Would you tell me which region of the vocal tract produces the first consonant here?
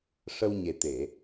retroflex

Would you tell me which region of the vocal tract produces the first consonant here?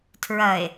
tongue tip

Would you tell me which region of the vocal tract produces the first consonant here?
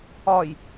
palate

